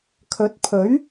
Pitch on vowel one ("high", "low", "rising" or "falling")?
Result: rising